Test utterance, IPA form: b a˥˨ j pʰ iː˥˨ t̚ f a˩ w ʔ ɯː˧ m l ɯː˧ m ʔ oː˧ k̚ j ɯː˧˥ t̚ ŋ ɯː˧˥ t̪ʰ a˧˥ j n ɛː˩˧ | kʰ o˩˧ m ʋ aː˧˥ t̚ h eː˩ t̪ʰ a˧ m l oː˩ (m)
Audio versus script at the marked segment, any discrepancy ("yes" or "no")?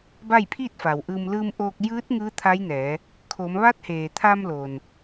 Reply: yes